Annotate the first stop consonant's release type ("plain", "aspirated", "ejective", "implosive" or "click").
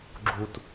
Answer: click